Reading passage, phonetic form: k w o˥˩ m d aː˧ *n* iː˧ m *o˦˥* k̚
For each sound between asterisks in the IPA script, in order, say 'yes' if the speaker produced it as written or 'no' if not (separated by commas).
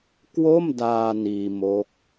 yes, yes